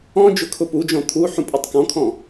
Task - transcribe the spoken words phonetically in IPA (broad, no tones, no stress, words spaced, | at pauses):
ɔ̃ d͡ʒʊkʰʊpud͡ʒɔ̃ t̪ʰu ħũpʼutˤkɔ̃kʰɔ̃